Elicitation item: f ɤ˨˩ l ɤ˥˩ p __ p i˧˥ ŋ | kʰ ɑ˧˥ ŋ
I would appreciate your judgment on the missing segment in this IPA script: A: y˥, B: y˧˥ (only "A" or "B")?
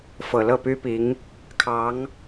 A